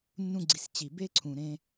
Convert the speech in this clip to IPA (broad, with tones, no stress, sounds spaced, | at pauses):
nː ũ˧ ɡ͡ǀ i˨ s t͡ɕ i˨ b e˦ ǀʰ ũ˨ ɾ ẽ˧